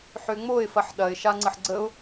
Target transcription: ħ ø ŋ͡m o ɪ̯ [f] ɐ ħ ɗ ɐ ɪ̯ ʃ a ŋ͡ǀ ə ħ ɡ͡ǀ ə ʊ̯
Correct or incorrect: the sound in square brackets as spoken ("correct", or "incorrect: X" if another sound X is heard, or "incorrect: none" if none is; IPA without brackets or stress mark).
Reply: correct